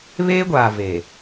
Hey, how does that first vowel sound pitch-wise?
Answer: high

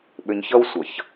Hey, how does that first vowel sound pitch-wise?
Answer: low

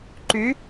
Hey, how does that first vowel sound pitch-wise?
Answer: rising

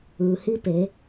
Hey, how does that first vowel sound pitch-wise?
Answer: low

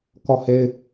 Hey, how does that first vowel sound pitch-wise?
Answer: falling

